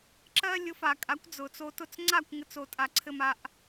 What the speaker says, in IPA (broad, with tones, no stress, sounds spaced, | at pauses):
ǁ ɜ˥ lʲ ʊ˩˥ f a˩ kʼ a˩˥ kʷ d͡z ʊ˩ t͡s o˧ t ʊ˥˩ t͡s ŋ͡ǀ a˥˩ kʷ ŋ ɘ˥ t͡s o˧ tʼ a˧ ǀʰ ɘ˥ m a˧ ʔ